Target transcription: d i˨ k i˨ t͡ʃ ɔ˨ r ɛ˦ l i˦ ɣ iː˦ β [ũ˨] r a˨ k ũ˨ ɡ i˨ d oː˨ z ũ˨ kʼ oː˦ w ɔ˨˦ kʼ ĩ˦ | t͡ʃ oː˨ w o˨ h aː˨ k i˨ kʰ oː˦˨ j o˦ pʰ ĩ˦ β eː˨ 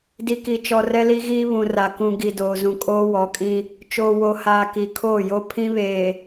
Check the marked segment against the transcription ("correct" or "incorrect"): correct